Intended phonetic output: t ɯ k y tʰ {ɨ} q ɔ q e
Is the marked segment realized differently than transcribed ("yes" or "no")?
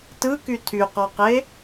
yes